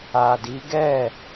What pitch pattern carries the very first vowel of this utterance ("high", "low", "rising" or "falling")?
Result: low